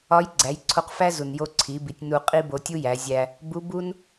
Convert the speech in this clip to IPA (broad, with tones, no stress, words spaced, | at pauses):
ɒ˧˥j ɡ͡ǀæ˩˧j ǀʰo˧qfæ˥ zu˩njo˧ ǀʰi˩˧bi˩˧tʲ nu˧qʼi˥ bo˧tʲu˥jæ˩˧zʲæ˧ | bu˧˥ bu˥n